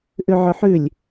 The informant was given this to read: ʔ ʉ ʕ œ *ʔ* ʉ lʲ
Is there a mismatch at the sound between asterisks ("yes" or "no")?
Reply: yes